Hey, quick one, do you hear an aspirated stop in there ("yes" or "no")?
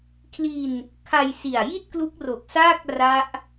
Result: yes